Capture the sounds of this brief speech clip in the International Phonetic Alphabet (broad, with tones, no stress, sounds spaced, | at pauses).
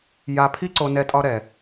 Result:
j a˧ pʰ i˥ ǀ o˧ n ɛ˧ tʼ ɒ˧ ɾ ɛ˩